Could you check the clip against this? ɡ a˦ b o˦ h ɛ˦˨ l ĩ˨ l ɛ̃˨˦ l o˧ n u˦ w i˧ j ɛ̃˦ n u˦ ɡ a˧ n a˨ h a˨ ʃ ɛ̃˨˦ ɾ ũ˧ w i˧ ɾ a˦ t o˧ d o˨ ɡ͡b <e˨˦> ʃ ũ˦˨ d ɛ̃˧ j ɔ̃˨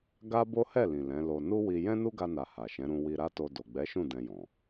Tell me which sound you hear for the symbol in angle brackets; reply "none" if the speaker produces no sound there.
ɛ˨˦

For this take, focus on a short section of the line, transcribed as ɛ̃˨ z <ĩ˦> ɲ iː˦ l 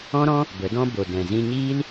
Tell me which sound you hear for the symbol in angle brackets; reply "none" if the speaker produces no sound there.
ĩ˧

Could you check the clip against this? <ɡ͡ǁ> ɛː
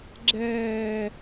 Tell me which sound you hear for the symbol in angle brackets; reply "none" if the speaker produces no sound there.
ɡ͡ǁ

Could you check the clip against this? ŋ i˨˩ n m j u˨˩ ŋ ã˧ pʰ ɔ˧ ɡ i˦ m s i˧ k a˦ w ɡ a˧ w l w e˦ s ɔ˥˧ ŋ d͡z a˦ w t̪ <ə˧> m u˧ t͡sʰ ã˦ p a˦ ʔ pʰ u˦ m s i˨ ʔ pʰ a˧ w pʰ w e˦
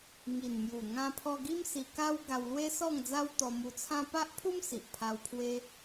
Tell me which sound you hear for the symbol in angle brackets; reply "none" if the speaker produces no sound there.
ɔ˧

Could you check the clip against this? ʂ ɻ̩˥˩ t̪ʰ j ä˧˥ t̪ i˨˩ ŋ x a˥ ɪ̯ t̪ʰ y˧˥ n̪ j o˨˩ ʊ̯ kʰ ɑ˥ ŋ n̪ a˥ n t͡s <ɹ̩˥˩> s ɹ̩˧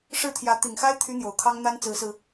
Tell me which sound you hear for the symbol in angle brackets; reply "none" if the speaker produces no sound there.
ɹ̩˧˥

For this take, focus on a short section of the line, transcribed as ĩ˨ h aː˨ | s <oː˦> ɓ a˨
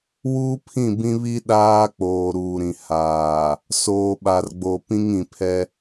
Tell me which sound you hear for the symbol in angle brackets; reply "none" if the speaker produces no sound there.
oː˨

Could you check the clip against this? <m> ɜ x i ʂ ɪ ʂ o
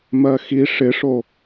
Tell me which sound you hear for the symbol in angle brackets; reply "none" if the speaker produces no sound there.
m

